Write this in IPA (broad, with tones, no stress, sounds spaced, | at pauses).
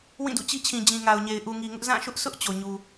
w ĩ˦˨ d ṵ˦˨ t͡ɕ i˦ t͡ɕʰ ĩ˨ d͡ʑ ĩ˨ ŋ a˨ ʊ̯ ɲ e˨ ɪ̯ ʔ u˨ ŋ i˨ ŋ ʊ˦ ʔ z ã˦˨ ʃ ʊ˦ ʔ s ʊ˦ ʔ t͡ɕ o˨ ɲ u˨